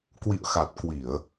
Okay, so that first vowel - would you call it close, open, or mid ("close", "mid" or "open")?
close